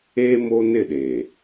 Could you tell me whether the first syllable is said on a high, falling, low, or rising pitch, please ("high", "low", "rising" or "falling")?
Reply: high